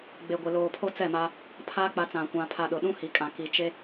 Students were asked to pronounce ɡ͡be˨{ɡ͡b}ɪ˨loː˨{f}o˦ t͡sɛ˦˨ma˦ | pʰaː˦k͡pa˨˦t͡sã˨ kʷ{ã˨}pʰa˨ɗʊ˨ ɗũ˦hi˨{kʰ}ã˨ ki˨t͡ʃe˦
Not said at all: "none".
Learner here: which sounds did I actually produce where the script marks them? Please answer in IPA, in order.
ɡʷ, pʰ, ã˨, kʼ

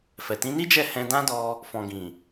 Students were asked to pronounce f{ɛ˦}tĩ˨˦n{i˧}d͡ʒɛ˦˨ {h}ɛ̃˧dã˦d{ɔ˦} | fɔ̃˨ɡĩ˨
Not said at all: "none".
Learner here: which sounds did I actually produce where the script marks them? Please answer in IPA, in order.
ɛ˨, i˦, h, ɔ˧

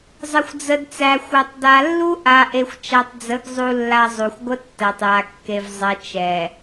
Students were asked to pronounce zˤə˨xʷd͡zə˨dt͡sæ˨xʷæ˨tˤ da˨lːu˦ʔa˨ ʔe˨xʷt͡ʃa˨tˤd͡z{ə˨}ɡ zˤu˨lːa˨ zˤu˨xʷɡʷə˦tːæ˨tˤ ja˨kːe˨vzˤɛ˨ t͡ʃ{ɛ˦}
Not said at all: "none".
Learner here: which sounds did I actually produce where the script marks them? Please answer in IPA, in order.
ə˨˦, ɛ˨

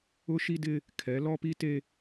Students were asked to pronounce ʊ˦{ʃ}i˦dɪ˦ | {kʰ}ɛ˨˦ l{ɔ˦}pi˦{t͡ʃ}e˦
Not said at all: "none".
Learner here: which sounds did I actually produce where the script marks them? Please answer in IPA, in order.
ʃ, kʰ, ɔ˦, t

